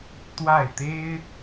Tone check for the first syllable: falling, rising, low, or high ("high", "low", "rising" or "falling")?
falling